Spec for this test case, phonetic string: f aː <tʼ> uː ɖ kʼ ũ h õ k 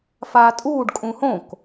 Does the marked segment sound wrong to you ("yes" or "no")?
no